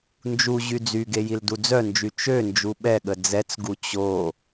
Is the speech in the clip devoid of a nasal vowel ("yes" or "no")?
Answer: yes